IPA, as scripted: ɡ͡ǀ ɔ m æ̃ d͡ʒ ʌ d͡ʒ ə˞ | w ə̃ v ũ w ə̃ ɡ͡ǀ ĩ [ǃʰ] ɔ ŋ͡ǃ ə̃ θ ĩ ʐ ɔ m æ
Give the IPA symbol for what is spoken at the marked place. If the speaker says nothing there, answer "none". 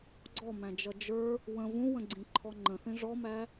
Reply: ǃʰ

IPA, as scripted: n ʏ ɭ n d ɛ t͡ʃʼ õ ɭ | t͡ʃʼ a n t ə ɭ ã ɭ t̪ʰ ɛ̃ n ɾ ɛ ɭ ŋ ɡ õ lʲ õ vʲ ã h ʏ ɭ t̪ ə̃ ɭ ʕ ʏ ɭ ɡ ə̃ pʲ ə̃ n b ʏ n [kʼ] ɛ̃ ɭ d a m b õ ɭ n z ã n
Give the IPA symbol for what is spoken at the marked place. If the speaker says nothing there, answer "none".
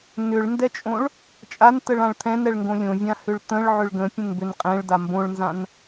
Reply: qʼ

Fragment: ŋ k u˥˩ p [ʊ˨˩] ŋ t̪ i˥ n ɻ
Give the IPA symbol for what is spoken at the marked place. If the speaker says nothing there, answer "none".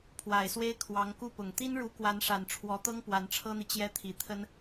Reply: ʊ˨˩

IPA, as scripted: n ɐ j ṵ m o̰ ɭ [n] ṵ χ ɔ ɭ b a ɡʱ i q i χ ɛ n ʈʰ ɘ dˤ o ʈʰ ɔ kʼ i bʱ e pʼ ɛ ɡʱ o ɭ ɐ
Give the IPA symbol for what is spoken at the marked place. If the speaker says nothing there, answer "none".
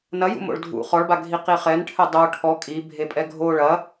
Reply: dʱ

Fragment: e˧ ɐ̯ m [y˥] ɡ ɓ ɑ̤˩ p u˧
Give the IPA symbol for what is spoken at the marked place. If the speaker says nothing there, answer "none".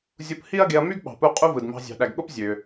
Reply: y˥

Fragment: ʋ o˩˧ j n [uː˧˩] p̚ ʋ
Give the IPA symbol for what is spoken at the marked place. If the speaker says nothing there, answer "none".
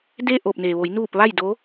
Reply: uː˧˩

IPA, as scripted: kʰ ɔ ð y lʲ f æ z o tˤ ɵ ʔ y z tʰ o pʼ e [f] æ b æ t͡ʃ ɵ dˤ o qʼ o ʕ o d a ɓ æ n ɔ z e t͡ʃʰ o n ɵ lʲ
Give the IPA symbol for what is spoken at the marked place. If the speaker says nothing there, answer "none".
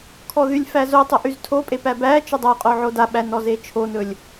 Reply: p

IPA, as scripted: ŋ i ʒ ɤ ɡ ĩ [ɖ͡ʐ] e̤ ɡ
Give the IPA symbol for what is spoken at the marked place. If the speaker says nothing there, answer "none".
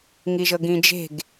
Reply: d͡ʒ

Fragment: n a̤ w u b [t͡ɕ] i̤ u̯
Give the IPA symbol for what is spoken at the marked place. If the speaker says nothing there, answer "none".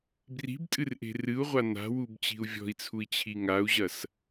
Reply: t͡ɕ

